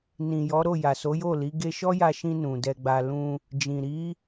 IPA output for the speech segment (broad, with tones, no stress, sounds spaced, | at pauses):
n ĩ˨ j ɔ˨˦ ɾ o˦˨ j a˨ s o˨˦ j o˦˨ l i˨˦ ɡ e˧ ʃ ɔ˦ j a˧ ʃ ĩ˧ n ũ˨ d ɛ˧ ɡ͡b a˧ l ũ˧ | d͡ʒ ĩ˨ ɾ i˨˦